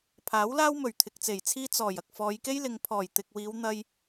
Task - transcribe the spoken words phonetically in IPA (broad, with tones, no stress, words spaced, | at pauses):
pʰaː˨˥wlaː˥wmɵ˨˩ɥ t̪ʰɪ˨k̚t͡se˨˩jt͡sʰiː˥ t͡sɔː˨˩j ɐ˨k̚fɔː˨˧jke˥jlɪ˨˧ŋ pʰɔː˨˩j t̪ɪ˨k̚wiː˨˧w n̪ɐ˧j